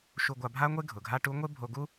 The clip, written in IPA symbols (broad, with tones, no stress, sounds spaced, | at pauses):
ʃ u˧ ɡʷ a˧ bʱ a˥ ŋʷ e˥ ɡʱ ʊ˩ ɡʱ a˥ ʈ u˧˥ ŋʷ e˥ bʱ o˧ ɡ u˥